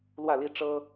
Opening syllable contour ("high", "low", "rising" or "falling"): falling